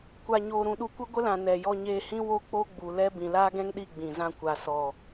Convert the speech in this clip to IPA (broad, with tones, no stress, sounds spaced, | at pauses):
kʷ a˧ ɲ oː˧ ɾ ũ˧ ɗ u˧ kʷ ɨ˦ ɡʷ ə˦ l ã˨ n ɛ˨ j ɔ˧ ɲ eː˧ h ĩ˦ w o˦ k͡p o˦ ɡ͡b u˨ l ɛ˦ b ĩ˨ l aː˦ ɡ ɛ̃˦ ŋ ɗ i˦˨ ɡ͡b ĩ˨ z ã˧ kʷ a˨ s ɔ˨